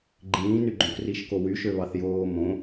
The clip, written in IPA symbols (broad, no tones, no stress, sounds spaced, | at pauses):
ɡ͡ǃ ĩː n y ɡ͡ǃ õ k r i ʃ k o w y ʃ ø β ɑ θ j oː m õ